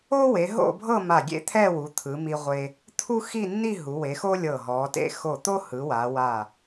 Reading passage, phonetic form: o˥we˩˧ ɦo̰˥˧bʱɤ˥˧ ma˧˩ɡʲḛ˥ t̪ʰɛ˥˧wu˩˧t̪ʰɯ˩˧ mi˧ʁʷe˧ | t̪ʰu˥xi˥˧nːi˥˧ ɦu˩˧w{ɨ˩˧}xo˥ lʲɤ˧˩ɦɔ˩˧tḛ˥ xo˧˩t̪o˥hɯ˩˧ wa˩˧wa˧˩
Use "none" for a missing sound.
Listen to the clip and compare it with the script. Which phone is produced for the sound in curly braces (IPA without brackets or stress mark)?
e˩˧